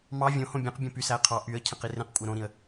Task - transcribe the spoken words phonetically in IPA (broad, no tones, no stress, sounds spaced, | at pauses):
m ɑ vʲ õ h õ bʲ ẽ q bʲ õ p y s æ ə̯ qʰ ɑ ʔ y ə̯ cʰ ẽ q i r ẽ q kʷʼ æ ɾ õ ɾ ĩ ə̯